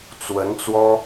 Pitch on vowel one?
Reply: rising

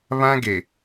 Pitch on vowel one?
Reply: high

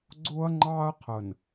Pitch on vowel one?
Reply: high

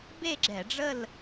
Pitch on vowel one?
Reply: falling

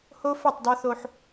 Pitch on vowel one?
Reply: high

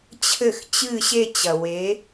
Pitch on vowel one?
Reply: falling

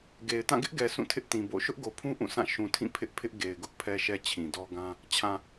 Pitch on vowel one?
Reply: low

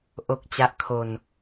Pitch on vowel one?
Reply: low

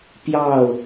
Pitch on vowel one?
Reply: falling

